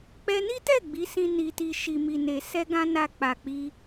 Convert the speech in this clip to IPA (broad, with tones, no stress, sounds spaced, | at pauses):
k͡p ɛ˧ n i˦ t ɛ˦˨ ɡ͡b i˨˦ s ĩ˧ n i˨ t i˨ ʃ i˨ m i˨ n e˨ s ɛ˧ ɡ ã˧ n a˨ k͡p a˨ k͡p i˧